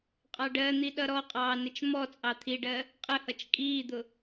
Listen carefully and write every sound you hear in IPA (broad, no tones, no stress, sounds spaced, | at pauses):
qʼ ɑ ɖ ɜ n̪ i ɗ ʌ ɾ ɔ qʼ ɑː n ɪ t͡ʃ m ɔ t͡sʼ ɑ t̪ʰ i ɖ ɜ | qʼ ə h ʌ t͡ʃ kʼ iː d̪ ʊ